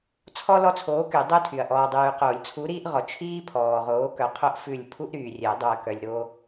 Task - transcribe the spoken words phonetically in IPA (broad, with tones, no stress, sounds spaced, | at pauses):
t͡sʰ ɔ˦ l ɔ˦ t͡sʰ oː˨˥ k y˨˩˦ dˤ o˦ tʰ y˨ ɐ̯ ʔ ɔː˨ dˤ yː˨ q oː˨˩˦ lʲ t͡sʰ u˨˥ ɾ iː˦ ʔ ʁ ɔ˨ t͡ʃʰ iː˦ pʰ ɔː˨ ʁ oː˨˥ k œ˨˥ qʰ o˦ ʔ f ʉ˦˨ lʲ pʰ u˦ ʔ ɾ yː˨ rʲ ɛ˨˩˦ dˤ u˨ ɐ̯ k œ˨ lʲ ɾ o˦